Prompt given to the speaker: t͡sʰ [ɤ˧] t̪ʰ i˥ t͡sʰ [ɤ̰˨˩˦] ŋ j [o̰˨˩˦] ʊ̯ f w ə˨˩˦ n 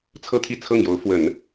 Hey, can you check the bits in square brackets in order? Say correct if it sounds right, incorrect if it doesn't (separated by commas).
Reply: incorrect, incorrect, incorrect